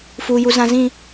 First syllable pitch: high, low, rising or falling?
low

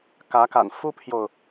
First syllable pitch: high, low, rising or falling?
rising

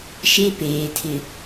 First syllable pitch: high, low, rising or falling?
high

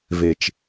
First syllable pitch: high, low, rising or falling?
low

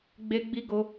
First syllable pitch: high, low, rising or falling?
high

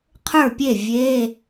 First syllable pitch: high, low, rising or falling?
falling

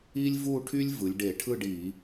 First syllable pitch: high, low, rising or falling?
high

